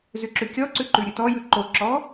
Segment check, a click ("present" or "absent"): present